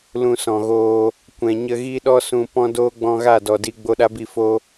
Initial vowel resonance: nasal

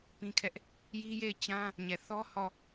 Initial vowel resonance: nasal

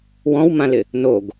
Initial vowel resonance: nasal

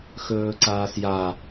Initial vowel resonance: oral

